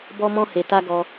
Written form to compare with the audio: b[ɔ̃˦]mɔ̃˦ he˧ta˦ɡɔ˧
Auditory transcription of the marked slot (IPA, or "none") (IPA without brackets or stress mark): ɔ˦